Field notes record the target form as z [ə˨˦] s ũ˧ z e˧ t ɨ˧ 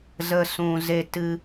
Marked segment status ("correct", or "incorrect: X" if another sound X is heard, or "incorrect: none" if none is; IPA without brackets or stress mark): incorrect: ə˦